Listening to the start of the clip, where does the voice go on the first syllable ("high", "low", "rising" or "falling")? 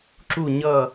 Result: falling